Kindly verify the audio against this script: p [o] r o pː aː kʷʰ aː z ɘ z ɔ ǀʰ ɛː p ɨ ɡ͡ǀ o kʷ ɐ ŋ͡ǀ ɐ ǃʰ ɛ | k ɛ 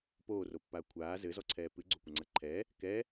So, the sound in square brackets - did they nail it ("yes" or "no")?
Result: no